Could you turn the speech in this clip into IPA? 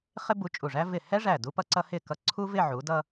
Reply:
χɪ˥bu˧t͡ʃʼu˧˩ʐæ˥ vɪ˧˩ hɛ˥ʐæ˧˩ du˥pʌ˥ǀʌ˥ hɪ˥˧ kʌ˧ǀʰu˥vɪ˥˧ ʕu˩˧dʌ˧

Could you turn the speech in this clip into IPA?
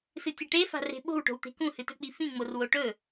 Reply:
sɨtʲɐʈefa̤ re̤ɓo̤wʈo̤wt̪e̤ kũhɨtɵk͡pi fĩŋ͡mor woʈɵ

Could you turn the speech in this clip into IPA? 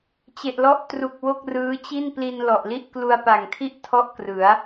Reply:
t͡ɕe˨˩ʔlɔ˦˥ʔtru˨˩k̚ wo˥˩k̚rɯː˦˥t͡ɕi˥˩n pli˧n lɔ˨˩ʔli˥˩ʔ klu˧a̯pa˨˩ŋtʰi˥˩ʔ tʰɔ˥˩ʔkrɯ˩˦a̯

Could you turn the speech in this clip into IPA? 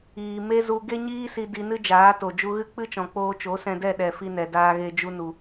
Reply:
iː˨me˦ zu˧ ɡe˦ɲiː˦si˧ di˧nɨ˦d͡ʒaː˨˦to˨ d͡ʒu˧ɣɨ˦k͡pɨ˦t͡ʃɔ̃˨ k͡poː˧t͡ʃo˨˦sɛ̃˧dɛ˦˨ ɗɛ˨ fi˧nɛ˨ daː˨ɣe˨ d͡ʒu˧nu˨

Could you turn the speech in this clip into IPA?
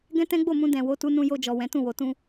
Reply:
ɡɛ̃˦tɛ̃˦ɡ͡bo˦˨mũ˧ dɛ̃˨ wo˨˦tu˧nũ˧ jo˧d͡ʒɔ˨ wɛ̃˨˦tũ˦˨wo˨˦tũ˦

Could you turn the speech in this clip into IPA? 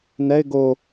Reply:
nɛɪ̯ ɡo

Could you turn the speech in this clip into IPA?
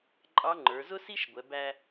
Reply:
ǃʼɑ˧˥ ŋ͡ǃə˞˩˧zʊ˥si˥ʃɡʷɛ˩˧ bæ˧

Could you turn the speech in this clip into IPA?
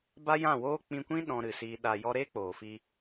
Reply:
ba˦jã˦˨woː˦ k͡pĩ˧kʷĩ˦ ɗɔ̃˧ɾɨ˨siː˧ ɗa˨ jɔ˧ɾe˦k͡poː˨ fi˧

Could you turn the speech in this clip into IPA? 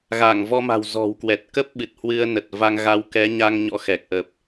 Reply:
ɣa˧˩ŋvɔ˧ma̤˨˩w zɔ̤˨˩wkwɛ˨˩t̚kə˦˥p̚ ɓɨ˨˩t̚hwɨ˧ə̯nə˨˩t̚va˧ŋ ɣa˧wkɛ˨˦ ɲa˧ŋ ɲɔ̰˧˥xɛ˨˩k̚ʔə˨˩p̚

